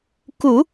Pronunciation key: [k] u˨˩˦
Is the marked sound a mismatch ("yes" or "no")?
no